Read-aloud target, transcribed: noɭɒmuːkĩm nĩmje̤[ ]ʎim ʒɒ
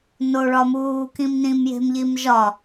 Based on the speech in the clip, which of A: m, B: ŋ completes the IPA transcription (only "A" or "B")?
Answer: A